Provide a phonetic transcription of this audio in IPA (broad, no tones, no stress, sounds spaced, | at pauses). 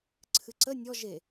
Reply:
ǀʰ ɨ ǀ ə nʲ ɔ ʒ e